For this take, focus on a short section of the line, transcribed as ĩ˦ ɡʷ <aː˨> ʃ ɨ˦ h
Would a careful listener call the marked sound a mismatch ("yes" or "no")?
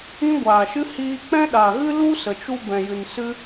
no